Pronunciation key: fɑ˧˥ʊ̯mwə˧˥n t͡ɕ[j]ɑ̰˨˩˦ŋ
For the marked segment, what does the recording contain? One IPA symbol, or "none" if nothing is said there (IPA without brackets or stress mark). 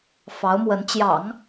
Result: j